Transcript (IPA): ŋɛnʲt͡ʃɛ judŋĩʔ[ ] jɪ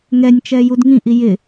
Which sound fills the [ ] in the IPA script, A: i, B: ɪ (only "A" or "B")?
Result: A